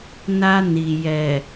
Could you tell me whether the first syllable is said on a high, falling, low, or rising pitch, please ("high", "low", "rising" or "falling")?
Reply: high